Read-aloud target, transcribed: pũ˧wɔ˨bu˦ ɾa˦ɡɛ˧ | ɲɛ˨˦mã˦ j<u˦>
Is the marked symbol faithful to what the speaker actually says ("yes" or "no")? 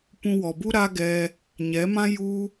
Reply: yes